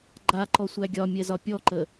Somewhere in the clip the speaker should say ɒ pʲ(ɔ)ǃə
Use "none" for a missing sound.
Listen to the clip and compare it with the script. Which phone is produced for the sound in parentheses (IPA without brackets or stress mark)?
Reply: ɔ